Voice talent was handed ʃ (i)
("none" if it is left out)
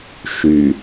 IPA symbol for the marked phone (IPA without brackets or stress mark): y